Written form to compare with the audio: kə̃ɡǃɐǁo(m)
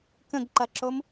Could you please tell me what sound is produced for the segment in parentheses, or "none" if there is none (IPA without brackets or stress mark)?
m